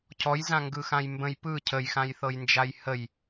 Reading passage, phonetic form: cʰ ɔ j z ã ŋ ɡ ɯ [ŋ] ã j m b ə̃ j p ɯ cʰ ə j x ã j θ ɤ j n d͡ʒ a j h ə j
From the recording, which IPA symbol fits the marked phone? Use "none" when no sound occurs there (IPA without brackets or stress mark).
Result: x